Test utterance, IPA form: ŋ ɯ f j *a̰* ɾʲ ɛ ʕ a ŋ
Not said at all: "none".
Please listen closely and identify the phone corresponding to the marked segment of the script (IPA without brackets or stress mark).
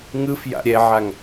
a̰